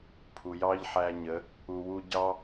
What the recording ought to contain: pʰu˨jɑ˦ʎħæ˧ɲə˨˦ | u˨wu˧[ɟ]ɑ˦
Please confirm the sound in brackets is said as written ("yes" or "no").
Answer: yes